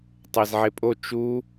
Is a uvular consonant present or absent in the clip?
absent